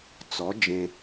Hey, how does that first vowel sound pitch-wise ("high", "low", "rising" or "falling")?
rising